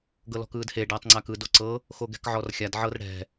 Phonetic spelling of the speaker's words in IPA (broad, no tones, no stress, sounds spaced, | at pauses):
ɡ ɤ l ɔ̤ k ɯː d h e ɖ aː tˤ ŋ͡ǀ a k ɯ d o ǀ ɤ | x o ɡ ɛ̤ k ʕ ɔ r xʲ a d ʕ ɤ r ɽ ɛ̤